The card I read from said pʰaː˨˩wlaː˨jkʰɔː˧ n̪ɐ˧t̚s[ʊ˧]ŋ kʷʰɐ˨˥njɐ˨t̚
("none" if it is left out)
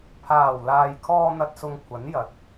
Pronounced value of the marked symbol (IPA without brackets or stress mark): ʊ˧